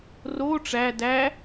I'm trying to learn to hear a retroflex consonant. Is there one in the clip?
yes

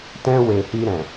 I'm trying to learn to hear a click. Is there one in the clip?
no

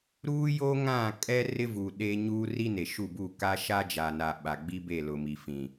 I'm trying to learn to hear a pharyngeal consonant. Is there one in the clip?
no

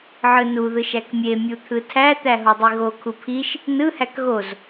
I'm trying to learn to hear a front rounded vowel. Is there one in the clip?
no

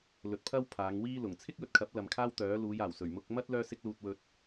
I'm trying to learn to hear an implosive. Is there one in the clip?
no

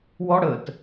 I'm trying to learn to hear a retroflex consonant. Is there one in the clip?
yes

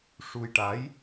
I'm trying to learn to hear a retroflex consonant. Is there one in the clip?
yes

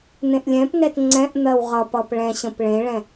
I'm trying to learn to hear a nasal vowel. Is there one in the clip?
yes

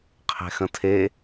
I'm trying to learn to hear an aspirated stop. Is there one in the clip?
yes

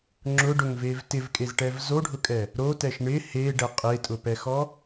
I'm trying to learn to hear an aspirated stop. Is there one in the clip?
no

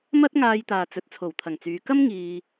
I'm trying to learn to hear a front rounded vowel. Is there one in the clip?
yes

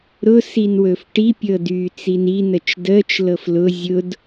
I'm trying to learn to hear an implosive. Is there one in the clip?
no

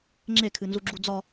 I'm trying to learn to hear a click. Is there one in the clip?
yes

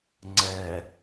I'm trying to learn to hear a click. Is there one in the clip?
yes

